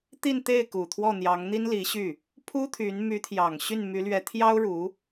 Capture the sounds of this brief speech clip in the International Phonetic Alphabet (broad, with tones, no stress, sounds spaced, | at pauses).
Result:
t̪ i˥˧ n t̪ e˥˩ ɪ̯ k u˨˩ t̪ʰ w ɔ˥˩ n̪ j ɑ˧˥ ŋ n̪ i˥ n l i˧˥ ɕ y˥˩ | pʰ u˥ t̪ʰ y˧˥ n m y˧˥ t̪ʰ j ɑ˨˩ ŋ ɕ y˥˩ n m y˧˥ l ɥ ɛ˧˥ t̪ʰ j ɑ˥ ʊ̯ ɻ u˧˥